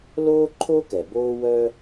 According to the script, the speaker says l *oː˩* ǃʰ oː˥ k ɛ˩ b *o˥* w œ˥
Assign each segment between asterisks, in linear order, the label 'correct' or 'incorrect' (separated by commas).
incorrect, incorrect